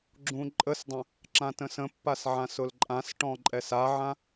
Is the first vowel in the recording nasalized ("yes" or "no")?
yes